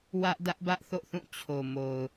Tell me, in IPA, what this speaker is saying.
w ä˦ ʔ d ä˦ ʔ b ä˦ ʔ θ o̰˦˨ θ ũ˦˨ t͡ɕʰ o˨ m o˨ ʊ̯

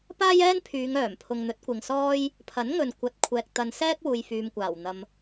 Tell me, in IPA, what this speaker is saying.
p aː˥ j ɛː˥ n pʰ yː˨˧ ŋ œː˨˩ m pʰ ʊ˨ ŋ n̪ ɵ˨˥ t̚ kʷ ɪ˨ ŋ s ɔː˥ j | pʰ ɐ˨˥ n ŋ ɵ˨ n kʷ ɐ˨˥ t̚ kʷʰ ɛː˨ k̚ t̪ ɐ˧ n s ɛː˥ k̚ w uː˨ j f yː˨ m kʷ aː˨˩ w n̪ ɐ˨ m

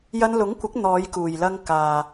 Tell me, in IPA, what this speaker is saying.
j ɐ˧ n l ʊ˨˥ ŋ kʷ ɪ˨˥ k̚ n̪ ɔː˨˧ j k uː˨˩ j l ɐ˧ ŋ k aː˨

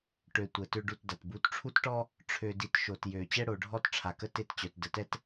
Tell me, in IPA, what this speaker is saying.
ʈ ø˨ tʷ ə˨ t ø˦ ɖ u˦˨ t d a˨ t b u˨˦ t ʈ͡ʂʰ u˦ t ʈ ɔ˦ | ʈ͡ʂʰ ø˨ d i˨ t ʃ o˨ t j ø˨ t͡ɕ ɛ˦ ɽ o˨ ɖʱ ɔ˦ t ʈ͡ʂʰ a˨ k ə˦ t e˦˨ t t͡ɕ œ˨ t d ə˨ t ɛ˦ t

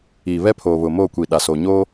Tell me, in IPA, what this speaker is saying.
iː˨ β ɛ˦ pʰ oː˨ β ʊ˨ m o˦˨ kʷ i˨ ɗ a˨ s oː˨ ɲ oː˦

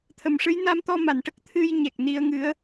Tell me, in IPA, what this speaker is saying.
t̪ʰ ə˨˩˨ m ʂ ɨ˧˥ j n a˧˥ m t̪ ɔ˧ m a˨˩˨ n ʈ ə˦˥ k̚ t̪ʰ ɨ˧ j ɲ ɛ˨˩ k̚ n i˧ ə̯ ŋ ɨ˧˥ ə̯

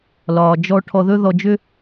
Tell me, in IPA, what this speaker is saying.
l ɒː˨ d͡ʒ ɔ˧ ʈʰ ɔ˧ ð ɵ˦ ð ɔ˧ d͡ʒ ʏ˦

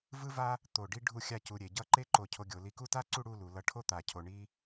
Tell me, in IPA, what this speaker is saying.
v ɯ˥ v a˥ | t̪ o˧˩ ɖ i˥ ɖʱ u˥˧ xʲ a˥˧ c u˧ ɾʲ e˩˧ ɟ ʌ˥˧ ǃ e˥ ǃ o˧˩ cʰ o˧ ɡʲ o˩˧ l i˧˩ k u˥˧ t a˥ ǀ u˥˧ ɽ u˥˧ l u˩˧ l ʌ˧ ʈʰ o˥˧ t̪ a˧˩ cʰ o˧ ɳ i˥

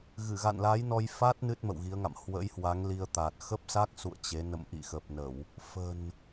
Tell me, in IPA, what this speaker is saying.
ɣ ɨ˧˩ ɣ a̰˧˨ n l a˨˦ j n ɔ˧ j f a˦˥ t̚ n ɨ˦˥ t̚ m ə̰˧˨ w ɣ i˨˦ ə̯ ŋ a̰˧˨ m h w ə̰˧˥ j h w a˨˦ ŋ l i˧ ə̯ t̪ a˨˩ t̚ x ə˦˥ p̚ s a˦˥ k̚ s ṵ˧˨ ə̯ t͡ɕ e˨˦ n ə̰˧˨ m ʔ ḭ˧˨ x ə˨˩ p̚ n ə˧˩˨ w | f ə̤˨˩ n

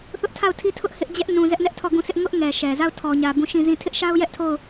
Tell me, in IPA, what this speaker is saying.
θ ʊ˦ ʔ tʰ a˦˨ ʊ̯ tʰ i˦ tʰ ʊ˦ ʔ h ɪ˦ ʔ d͡ʑ ɛ˦ ʔ n ũ˨ z ɛ˦ ʔ n ɛ˦ ʔ tʰ ɔ˦˨ ɡ ũ˦˨ sʰ ɪ˦ ʔ ŋ ʊ˦ ʔ ŋ ɛ˨ ʃ ɛ˨ z a˦˨ ʊ̯ tʰ ɔ˨ ɲ ä˨ b ũ˦˨ ʃ ĩ˦˨ z ĩ˦˨ tʰ ɪ˦ ʔ ʃ a˦ ʊ̯ j ɛ˦ ʔ tʰ o˦˨ ʊ̯

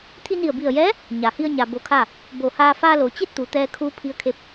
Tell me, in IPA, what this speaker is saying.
t̪ʰ i˧ n i˧˩ ə̯ b i˧˩ ə̯ j ɛː˧˥ | ɲ a˩ h i˧ ə̯ ɲ a˩ b o˧ kʰ a˥˨ | b o˧˩ h aː˧ f aː˧ l o˩ t͡ɕ e˥˨ t̚ t̪ u˩ t̪ ɛː˧ kʰ uː˧˥ pʰ i˧˥ ə̯ kʰ e˧˥ p̚

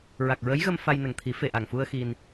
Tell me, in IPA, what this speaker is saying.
ɹ a˨˩ k̚ ɹ ə˧˥ j ɣ ə˧ m f a˧ j n ə˨˩ ŋ t̪ʰ i˨˩˦ f e˨˩ ʔ a˨˩ ŋ f u˧ ə̯ x i˧ n

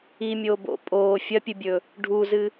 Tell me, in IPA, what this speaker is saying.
i mʲ o b o̰ pʼ oː fʲ ɐ pʲ ɨ bʲ ɵ | ɖʱ u z ɨ

